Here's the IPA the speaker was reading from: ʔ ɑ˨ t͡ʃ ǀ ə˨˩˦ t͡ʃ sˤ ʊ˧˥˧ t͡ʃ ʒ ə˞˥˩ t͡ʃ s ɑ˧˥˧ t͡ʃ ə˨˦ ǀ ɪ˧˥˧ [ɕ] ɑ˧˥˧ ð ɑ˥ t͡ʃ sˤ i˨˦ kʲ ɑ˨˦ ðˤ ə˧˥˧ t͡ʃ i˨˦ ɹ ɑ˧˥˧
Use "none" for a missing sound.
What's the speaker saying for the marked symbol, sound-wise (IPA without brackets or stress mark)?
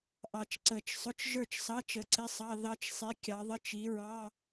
sˤ